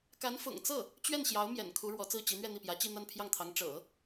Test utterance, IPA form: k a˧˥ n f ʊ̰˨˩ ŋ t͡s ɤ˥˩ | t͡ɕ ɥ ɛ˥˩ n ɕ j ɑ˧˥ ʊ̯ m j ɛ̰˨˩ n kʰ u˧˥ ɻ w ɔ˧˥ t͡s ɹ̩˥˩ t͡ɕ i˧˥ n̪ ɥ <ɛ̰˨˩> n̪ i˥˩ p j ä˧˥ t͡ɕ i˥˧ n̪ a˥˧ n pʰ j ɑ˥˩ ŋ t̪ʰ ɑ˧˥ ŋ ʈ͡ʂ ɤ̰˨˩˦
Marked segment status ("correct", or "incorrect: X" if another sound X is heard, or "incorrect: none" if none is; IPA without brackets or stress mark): incorrect: ɛ˥˧